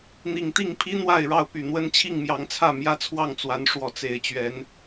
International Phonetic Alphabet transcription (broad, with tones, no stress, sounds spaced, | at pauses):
n̪ i˨˩ ŋ t̪ i˥˨ ŋ pʰ i˦ n̪ w a˥˨ ɪ̯ ɻ ɑ˥˨ ʊ̯ p y˨˩ n̪ w ə˦ n t͡ɕʰ i˥˨ ŋ m j ɑ˨˦ ŋ t͡sʰ ä˥˨ m j ä˦ t͡sʰ w ɑ˥˨ ŋ t͡s w a˨˦ n ʂ w ɔ˨˦ t͡s e˨˩ ɪ̯ t͡ɕ ɥ ɛ˨˦ n